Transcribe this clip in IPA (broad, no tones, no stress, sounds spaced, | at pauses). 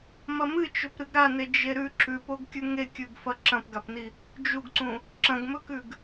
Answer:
m ɐ m ɨ t͡ʃ ɵ p ɾ ɨ ɡ ɾ a n e d͡ʒ e ɾ ʉ ǁ ʉ p o ɡ kʲ ʉ ŋ e kʲ ʉ ɡ f ɐ ǁ ɐ̃ p ɡ a p n i | d͡ʒ u ɡ ǀ ũ | ǁ ɐ̃ ɡ m ɵ k ʉ ɡ